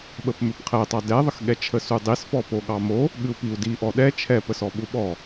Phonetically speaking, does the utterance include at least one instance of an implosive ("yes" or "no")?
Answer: yes